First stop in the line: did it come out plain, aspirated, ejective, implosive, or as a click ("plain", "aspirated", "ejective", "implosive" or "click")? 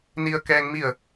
plain